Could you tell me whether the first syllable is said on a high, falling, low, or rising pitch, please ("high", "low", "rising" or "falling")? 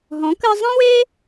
rising